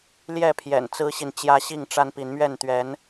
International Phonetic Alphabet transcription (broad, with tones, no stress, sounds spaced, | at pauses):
l j ɛ˥˨ pʰ j ɛ̰˨˩ n t͡s ɹ̩˦ ɕ i˨ n t͡ɕ j ä˦ ɕ i˥˨ ŋ ʈ͡ʂ a˦ n p i˨˦ n m ɥ ɛ˥˨ n t̪ ɥ ɛ˨˦ n